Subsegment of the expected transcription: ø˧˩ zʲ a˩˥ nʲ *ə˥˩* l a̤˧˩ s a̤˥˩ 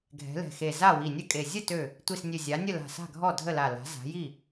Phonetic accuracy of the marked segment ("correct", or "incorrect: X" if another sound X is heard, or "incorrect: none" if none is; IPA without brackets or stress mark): correct